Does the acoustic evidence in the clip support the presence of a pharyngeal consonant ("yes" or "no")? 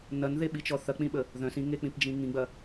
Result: no